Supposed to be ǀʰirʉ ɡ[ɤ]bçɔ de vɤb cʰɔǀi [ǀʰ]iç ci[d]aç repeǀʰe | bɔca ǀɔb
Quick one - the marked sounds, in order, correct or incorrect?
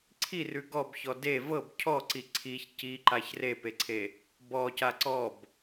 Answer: incorrect, correct, incorrect

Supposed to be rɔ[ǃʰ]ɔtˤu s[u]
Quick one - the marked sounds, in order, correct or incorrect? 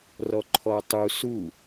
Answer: correct, correct

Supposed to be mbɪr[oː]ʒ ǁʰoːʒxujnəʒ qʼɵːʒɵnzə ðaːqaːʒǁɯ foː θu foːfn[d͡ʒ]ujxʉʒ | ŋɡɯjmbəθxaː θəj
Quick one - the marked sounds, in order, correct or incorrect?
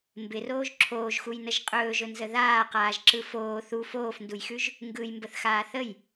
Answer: correct, incorrect

